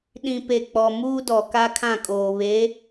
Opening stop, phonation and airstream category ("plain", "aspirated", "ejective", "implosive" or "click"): implosive